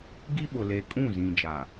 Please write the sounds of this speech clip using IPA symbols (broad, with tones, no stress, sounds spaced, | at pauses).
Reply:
ɡ i˦ ɓ ʊ˨ l e˨ kʼ ũ˦˨ z ĩ˨ d͡ʒ a˨